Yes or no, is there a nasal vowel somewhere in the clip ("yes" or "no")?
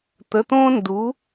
yes